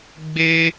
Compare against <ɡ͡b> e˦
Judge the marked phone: correct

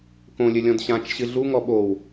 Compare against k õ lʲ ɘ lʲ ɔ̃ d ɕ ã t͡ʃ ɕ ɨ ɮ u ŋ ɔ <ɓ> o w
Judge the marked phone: correct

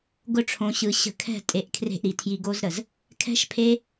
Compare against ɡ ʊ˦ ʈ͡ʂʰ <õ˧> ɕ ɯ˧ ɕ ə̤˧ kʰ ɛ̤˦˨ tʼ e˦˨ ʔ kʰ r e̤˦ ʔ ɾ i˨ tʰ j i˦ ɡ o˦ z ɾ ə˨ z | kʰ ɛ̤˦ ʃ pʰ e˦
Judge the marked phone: correct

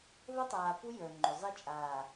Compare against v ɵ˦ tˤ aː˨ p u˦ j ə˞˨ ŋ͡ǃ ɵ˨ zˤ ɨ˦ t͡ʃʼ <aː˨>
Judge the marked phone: correct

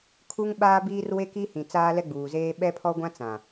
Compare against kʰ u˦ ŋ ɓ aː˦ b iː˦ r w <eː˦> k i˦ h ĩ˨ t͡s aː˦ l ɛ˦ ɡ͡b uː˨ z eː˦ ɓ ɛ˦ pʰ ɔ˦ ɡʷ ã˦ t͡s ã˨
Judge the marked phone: incorrect: e˦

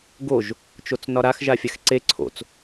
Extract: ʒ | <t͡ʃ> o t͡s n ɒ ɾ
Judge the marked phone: correct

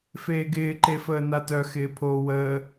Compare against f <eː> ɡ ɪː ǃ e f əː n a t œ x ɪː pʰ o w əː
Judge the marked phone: correct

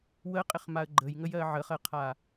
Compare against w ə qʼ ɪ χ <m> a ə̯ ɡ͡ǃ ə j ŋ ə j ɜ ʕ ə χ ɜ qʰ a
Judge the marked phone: correct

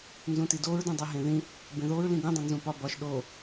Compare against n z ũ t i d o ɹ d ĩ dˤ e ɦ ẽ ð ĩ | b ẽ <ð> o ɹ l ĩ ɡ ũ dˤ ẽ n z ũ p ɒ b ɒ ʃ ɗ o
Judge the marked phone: correct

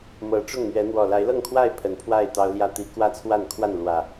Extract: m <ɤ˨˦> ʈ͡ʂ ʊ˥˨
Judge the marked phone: correct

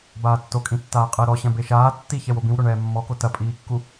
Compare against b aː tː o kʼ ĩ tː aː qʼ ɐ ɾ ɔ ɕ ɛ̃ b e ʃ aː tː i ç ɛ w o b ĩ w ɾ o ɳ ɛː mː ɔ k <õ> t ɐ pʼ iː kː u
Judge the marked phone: incorrect: o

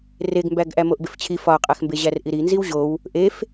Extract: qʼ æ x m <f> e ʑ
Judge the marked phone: incorrect: b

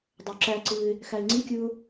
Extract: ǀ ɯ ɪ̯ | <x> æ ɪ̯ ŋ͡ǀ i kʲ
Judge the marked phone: correct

